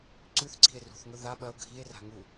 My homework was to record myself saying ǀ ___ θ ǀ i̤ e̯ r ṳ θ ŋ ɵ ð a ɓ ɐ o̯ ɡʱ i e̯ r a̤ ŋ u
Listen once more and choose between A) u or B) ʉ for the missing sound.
B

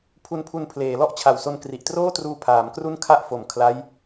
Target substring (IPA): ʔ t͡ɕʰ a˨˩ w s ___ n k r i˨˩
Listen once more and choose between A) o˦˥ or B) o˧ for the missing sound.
B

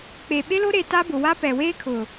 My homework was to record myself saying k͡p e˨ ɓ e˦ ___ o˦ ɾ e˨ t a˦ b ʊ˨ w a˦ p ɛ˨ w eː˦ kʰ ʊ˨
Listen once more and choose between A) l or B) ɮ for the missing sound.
A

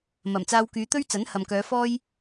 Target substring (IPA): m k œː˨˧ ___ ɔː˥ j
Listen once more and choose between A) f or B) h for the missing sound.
A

